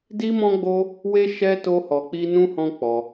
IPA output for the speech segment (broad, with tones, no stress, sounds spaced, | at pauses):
d i˦ m ɔ̃˦ ɡ͡b o˦ | w e˦ ʃ ɛ˦ t o˦ h ɔ˧ k͡p i˦ n ũ˦ h ɔ̃˦ k͡p ɔ˧